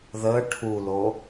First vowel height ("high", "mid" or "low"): mid